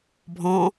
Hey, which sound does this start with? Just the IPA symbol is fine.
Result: bʱ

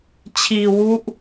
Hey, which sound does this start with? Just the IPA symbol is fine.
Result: t͡ɕʰ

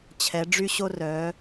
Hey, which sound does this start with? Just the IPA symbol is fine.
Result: t͡ɕʰ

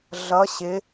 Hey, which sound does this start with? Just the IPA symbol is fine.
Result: ɮ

